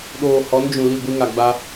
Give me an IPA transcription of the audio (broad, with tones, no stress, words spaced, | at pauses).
ɗoː˨hɔ˨˦nd͡ʒũ˨ li˦˨ɡʷi˦ŋa˨ɡ͡ba˦